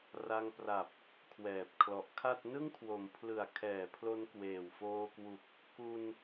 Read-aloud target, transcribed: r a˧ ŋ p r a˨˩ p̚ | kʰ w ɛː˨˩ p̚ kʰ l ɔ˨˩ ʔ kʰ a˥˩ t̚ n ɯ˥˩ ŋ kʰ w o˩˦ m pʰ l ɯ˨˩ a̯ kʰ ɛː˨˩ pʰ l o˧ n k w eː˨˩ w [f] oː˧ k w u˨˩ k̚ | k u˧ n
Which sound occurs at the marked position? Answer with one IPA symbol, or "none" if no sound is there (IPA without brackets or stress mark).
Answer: f